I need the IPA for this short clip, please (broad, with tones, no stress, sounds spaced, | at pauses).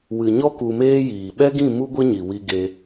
w ɨ˨ ɲ ɔ˦ k u˧ m eː˦ j iː˨ ɓ ɛ˦ ɡ ĩ˦˨ m u˦ ɡʷ ɨ˦ ɲ i˨ w i˧ ɡ e˧